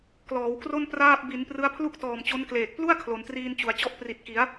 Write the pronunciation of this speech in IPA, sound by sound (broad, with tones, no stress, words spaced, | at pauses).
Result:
klɔː˩˦wkro˥˩n praː˥˩p̚ bi˩˦n prɯ˦˥a̯pʰlu˥˩k̚tɔː˨˩m t͡ɕo˦˥nkleː˨˩k̚ plu˥˩a̯ kʰlo˩˦ntriː˧nt͡ɕu˩˦a̯t͡ɕɔ˥˩ʔ pri˨˩t̚ki˩˦a̯